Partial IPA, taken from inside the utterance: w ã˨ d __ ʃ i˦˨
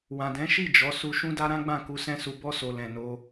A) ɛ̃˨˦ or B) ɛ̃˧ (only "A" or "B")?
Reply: A